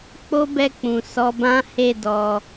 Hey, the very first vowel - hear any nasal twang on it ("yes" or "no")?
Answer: no